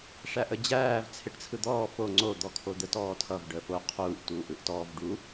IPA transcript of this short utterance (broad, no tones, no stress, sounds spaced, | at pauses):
ʂ æ ʔ ə d͡ʑ æː v t͡sʰ ɪ ʈ t͡sʰ ɯ d̪ ɔː f o ŋ͡ǀ o d̪ ɔ kʰ o d̪ ə t ɔː tʰ ʌ v ɖ əː f o qʰ uː ʔ t uː ʔ ɯ ʔ t ɔː v ɖ u